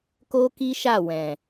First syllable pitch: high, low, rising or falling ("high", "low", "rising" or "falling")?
high